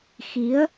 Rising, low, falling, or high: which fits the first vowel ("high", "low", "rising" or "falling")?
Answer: rising